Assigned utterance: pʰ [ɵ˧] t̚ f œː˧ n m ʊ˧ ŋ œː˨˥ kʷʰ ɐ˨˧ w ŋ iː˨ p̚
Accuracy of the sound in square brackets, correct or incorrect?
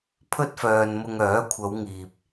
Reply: incorrect: ɵ˥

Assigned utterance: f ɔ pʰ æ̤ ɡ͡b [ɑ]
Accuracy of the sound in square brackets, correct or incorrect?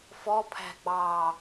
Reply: correct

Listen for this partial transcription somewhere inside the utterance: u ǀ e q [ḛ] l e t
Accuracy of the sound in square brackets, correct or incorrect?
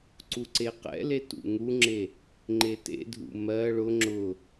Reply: incorrect: ɛ̰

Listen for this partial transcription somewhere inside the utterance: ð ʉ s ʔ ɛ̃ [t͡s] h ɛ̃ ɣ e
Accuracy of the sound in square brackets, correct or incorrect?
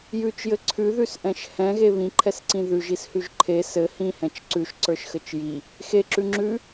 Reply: incorrect: ʃ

